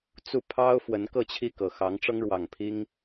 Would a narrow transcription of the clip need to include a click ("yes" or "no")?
no